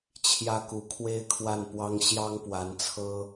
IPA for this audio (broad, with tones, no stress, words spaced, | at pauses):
t͡ɕʰjä˥ku˧˥ kʰwe˥ɪ̯kʰwa˥˩npwɑ˥ŋ ɕjɑ˥ŋpwa˧˥nt͡sʰɤ˥